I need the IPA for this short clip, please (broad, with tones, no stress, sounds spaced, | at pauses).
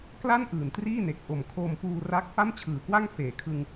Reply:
k l a˥˩ n ʔ ɯː˨˩ n t r iː˥˩ n e˨˩ k̚ ʔ o˨˩ m kʰ o˧ m p uː˧ r a˦˥ k̚ f a˥˩ m t͡ɕʰ ɯː˨˩ k w a˥˩ ŋ f eː˩˦ kʰ ɯ˧ ŋ